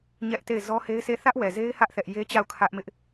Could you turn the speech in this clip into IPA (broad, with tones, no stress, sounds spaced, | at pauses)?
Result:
ɲ ɛ˦ ʔ t e˦˨ ɪ̯ z ɔ˦ h e˦ ɪ̯ s e˦˨ θ ä˦ ʔ w ɛ˨ z e˦ ɪ̯ h ä˦ ʔ θ ɛ˦ ʔ j e˦ t͡ɕ a˦˨ ʊ̯ kʰ ä˦ ʔ m ɪ˦ ʔ